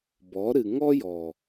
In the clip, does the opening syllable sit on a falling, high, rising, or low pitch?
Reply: rising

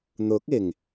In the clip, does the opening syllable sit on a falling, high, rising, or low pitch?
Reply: rising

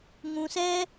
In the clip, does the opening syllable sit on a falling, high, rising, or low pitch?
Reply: low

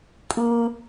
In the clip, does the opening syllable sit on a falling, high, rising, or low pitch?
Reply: low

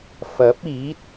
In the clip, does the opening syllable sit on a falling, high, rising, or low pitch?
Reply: rising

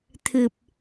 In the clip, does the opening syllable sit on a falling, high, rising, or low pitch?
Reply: low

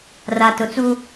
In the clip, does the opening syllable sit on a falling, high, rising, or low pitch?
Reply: low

